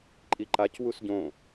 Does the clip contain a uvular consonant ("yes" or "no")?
no